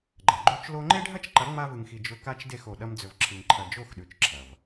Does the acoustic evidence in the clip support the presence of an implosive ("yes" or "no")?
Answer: yes